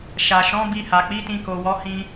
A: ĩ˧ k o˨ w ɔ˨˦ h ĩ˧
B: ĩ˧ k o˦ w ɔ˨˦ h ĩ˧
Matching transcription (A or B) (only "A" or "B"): A